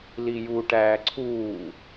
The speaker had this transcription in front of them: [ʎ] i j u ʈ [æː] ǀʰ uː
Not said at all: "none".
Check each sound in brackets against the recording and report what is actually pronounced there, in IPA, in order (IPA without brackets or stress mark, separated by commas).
l, æː